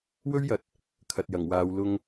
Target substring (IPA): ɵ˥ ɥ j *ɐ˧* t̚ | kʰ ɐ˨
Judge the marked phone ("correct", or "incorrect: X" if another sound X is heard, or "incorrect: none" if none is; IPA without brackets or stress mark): incorrect: ɐ˨˥